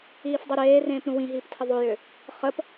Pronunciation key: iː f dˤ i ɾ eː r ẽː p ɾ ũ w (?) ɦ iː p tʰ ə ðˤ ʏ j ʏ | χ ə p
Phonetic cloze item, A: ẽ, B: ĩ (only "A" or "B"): B